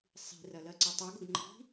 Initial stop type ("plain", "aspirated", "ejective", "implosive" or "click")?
click